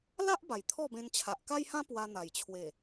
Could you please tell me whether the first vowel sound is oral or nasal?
oral